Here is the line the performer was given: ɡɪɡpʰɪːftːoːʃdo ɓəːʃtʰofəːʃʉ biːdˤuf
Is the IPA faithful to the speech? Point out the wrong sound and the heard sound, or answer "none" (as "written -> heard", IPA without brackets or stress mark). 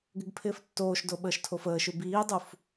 none